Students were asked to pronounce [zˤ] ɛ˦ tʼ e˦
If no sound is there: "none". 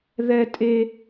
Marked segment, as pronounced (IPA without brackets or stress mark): ð